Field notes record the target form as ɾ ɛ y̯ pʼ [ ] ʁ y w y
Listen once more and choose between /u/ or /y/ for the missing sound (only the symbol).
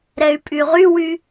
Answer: y